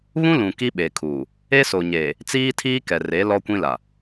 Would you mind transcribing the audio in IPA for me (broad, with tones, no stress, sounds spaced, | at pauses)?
β ũ˦ l ũ˨ k i˦ ɓ e˨ kʰ uː˨ | e˦ s o˨ ɲ eː˨ | t͡s iː˦ tʰ iː˦ k ɛ˨ r e˨˦ l ɔ˦ kʷ ĩ˦ l a˨